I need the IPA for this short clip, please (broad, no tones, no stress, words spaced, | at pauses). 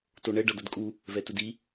toɳɛ ɖʌdʌdkʼu | vɛtudi